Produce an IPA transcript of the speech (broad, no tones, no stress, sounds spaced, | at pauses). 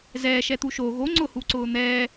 z ɛː ʃ ɛ t̪ u ʃ o ɣ o ŋ͡ǀ ʊ h u ǀ ʊː n̪ ɛː